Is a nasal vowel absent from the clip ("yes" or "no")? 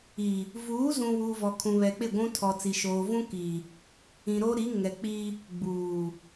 no